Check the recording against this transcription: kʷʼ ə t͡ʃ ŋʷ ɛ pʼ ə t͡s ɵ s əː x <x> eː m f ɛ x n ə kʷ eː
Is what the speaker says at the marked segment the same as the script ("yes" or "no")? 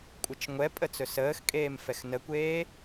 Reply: no